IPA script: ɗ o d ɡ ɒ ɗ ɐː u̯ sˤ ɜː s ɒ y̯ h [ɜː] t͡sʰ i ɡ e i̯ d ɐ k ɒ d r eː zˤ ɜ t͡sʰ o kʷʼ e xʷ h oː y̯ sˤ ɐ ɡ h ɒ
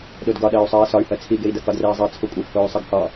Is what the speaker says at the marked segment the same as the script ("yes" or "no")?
no